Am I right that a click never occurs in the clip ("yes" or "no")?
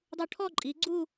no